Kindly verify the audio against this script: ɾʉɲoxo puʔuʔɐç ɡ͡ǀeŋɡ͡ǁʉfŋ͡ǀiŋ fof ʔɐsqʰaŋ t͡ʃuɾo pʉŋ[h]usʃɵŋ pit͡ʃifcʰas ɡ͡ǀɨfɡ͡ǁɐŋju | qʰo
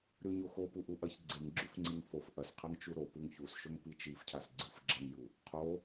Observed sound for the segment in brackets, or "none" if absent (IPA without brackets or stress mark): ç